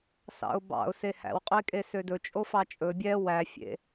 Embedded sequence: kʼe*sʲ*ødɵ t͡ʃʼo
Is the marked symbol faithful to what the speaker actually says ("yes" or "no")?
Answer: no